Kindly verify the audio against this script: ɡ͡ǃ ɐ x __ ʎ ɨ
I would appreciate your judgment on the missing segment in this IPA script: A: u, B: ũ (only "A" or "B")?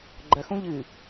B